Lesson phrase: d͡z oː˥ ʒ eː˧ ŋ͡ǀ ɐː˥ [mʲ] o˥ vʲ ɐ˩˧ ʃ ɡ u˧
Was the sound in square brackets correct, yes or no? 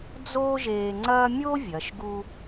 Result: yes